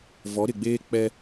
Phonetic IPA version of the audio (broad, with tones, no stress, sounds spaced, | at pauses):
v ɔ˨˦ ɾ ɪ˨ ɡ͡b eː˦ k͡p ɛ˦